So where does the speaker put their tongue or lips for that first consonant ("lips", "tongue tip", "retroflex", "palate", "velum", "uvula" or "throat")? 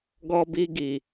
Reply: velum